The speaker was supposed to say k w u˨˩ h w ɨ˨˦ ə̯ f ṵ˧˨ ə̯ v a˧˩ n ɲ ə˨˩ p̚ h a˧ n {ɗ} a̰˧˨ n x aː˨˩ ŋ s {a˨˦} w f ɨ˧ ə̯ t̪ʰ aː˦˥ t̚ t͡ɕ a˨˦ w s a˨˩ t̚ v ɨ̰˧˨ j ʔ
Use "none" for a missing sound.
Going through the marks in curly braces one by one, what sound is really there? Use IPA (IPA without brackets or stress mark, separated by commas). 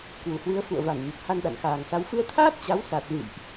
ɗ, a˨˦